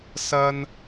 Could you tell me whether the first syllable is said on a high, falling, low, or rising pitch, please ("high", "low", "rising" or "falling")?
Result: high